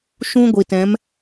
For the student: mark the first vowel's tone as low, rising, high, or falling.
high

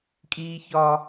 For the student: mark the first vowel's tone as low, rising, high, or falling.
high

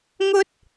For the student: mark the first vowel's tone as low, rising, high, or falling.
high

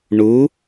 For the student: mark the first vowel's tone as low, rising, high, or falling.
rising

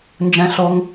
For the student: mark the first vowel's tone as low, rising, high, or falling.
high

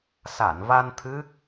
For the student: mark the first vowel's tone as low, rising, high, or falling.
low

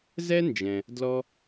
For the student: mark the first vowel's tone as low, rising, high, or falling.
high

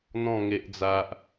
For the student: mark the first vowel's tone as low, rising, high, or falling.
falling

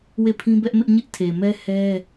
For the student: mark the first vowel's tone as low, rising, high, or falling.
falling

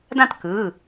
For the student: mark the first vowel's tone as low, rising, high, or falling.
falling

